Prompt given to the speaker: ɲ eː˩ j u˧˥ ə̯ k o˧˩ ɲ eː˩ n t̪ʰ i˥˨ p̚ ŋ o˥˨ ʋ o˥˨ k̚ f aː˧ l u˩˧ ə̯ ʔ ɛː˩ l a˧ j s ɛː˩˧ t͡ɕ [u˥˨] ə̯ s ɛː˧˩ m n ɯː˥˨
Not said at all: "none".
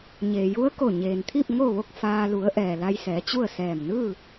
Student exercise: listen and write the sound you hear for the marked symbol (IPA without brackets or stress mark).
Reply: u˥˨